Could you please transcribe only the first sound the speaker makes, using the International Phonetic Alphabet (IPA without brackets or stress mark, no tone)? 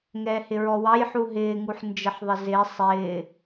ŋ